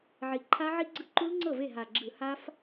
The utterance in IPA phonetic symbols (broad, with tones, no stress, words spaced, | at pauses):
ʕi˨˩ ǃʰa˦˥ʕi˦˥ɡ͡ǀɯ˦˥ ǃu˦˥lŋ͡ǀɤ˥˩ve˥˩ ɦa˨˩ɡ͡ǁɯ˧˩˧ ha˦˥f